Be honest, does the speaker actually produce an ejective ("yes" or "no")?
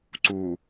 no